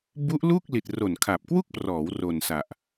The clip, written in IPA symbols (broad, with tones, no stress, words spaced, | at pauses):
bu˦˥ʔ lu˥˩k̚li˨˩t̚ ro˨˩nkʰa˨˩p̚kwu˥˩k̚prɔː˩˦w ro˨˩nsa˨˩ʔ